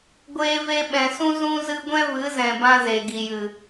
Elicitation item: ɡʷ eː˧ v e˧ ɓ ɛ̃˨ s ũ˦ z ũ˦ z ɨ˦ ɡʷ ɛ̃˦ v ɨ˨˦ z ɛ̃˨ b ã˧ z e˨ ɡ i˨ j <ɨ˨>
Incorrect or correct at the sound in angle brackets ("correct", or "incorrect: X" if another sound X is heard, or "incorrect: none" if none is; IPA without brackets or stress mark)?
correct